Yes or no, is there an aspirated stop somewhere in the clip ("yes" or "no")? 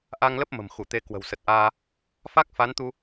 no